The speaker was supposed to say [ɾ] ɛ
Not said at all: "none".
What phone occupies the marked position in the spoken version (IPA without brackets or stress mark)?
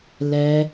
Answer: l